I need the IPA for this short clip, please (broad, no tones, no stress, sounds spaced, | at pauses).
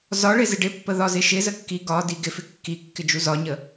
z ɒ ɭ ɪ z ɪ ɖ ɪ pː ə ð ɒ z ɪ ʃ ɪ z ə kː i ɡ ɒ d i ɡ ɪ f ɪ kː i kː ɪ d͡ʒ u z ɒ ɲ ə